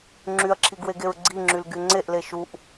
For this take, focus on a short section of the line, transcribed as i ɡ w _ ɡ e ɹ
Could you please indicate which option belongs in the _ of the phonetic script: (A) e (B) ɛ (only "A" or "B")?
A